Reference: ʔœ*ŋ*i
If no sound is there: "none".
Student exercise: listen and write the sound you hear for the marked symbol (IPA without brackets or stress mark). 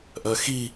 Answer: x